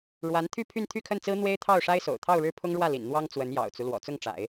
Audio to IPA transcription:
ɻ w a˧˥ n t̪ʰ y˥˧ pʰ y˥˧ n t̪ʰ y˥˧ kʰ ə˥˩ n t͡s ɹ̩˥ n̪ w e˥ ɪ̯ t̪ʰ ɑ˥˩ ʊ̯ ʂ a˥ ɪ̯ s o̰˨˩ ʊ̯ t̪ʰ ɑ˥˧ ʊ̯ ɻ ɻ̩˥˩ pʰ ʊ˥ ŋ ɻ w ä˥˩ l ḭ˨˩ n n̪ w ɑ˥ ŋ t͡s w ə˧˥ n j ɑ̰˨˩ ʊ̯ t͡s u˦ l w ɔ̰˨˩ t͡s ʊ˥˩ ŋ ʈ͡ʂ a̰˨˩˦ ɪ̯

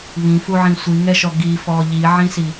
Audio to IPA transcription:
β ĩ f u ʕ ĩ sʷ i ŋ ɛ ʃ ɔ ɡ i f ɔ ʎ i ʕ ĩ s i

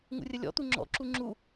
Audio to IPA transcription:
ŋ ṵ rʲ ə lʲ ɔ̰ t̪ u ŋ͡ǁ ɔ̰ ǁ u ŋ͡ǁ u

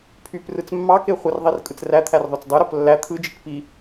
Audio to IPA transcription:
pʰ y p r ɯ t͡s mː ɑ k e χʷ ɯ r ðˤ i r kʼ ɯ t͡s r æ t̪ʰ æ r ðˤ ø t͡s dˤ ɯ ɾ o p lː æ t̪ʰ ɯ d͡ʒ i k p i

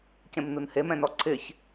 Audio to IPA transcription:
c ẽ m n u n h e m ɛ̃ n ɔ ǀʰ ɪ ç

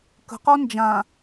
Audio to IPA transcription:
k ə̤ q ɔ n d͡ʒ ã

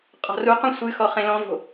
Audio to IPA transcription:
qʼ ɔ̤ r u q ũ sʷ ɨ x ɔ χ ẽ l ɔ̃ v o̤

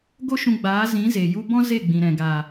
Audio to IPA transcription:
ɡ o˦ ʃ ũ˧ ɡ͡b aː˨˦ z ĩ˨˦ z e˨ j u˦ b ɔ̃˦ z e˦˨ ɡ͡b ĩ˨ ɾ ɛ̃˨ ɡ aː˨

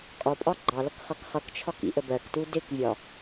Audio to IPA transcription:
kʼ ɒ pʼ ɒ ɡ͡ǃ ɑ l ʌ k χ ʌ k χ ʌ k t͡ʃʰ ɒ k ḭ ʔ ə b ɜ k t u d ɪ k vʲ ɒ

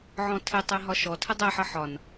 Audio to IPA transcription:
ʕ ɔ̃ tʰ ɪ tˤ æ ɦ ɒ ʃ ɔ tʰ ə dˤ æ ħ ʌ ħ ɒ n

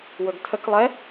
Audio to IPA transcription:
w ɵ ɡ tʰ ə k lˠ ɛ

